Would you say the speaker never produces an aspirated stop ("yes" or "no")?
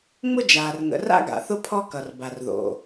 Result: no